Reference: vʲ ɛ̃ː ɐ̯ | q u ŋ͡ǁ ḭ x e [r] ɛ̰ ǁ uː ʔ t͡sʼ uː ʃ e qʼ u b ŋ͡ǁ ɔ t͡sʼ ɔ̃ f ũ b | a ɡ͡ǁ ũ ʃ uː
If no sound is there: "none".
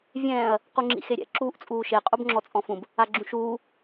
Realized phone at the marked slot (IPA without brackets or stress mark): ɾʲ